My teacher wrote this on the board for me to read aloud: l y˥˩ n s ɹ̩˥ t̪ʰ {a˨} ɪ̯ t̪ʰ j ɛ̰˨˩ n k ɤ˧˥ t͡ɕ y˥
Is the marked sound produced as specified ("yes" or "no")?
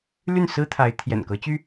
no